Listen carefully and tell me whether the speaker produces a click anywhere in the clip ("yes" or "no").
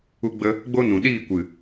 no